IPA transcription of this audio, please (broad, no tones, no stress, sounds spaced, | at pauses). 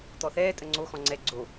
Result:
t̪ ɔ θ ɛː tʼ ə ŋ͡ǀ o x ɔ̃ ŋ͡ǀ ɛ ɡ͡ǀ o